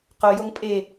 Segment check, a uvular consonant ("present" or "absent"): present